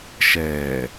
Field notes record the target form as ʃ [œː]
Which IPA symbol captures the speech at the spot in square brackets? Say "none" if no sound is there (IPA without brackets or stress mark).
ɛː